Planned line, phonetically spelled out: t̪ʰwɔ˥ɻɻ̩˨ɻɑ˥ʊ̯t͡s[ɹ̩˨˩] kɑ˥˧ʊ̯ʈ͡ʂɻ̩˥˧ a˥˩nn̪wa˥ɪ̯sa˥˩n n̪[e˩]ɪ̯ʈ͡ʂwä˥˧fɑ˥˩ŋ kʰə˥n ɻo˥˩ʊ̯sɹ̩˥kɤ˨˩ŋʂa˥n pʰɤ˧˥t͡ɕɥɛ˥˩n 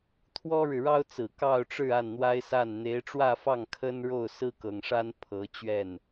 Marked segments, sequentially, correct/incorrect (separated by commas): correct, incorrect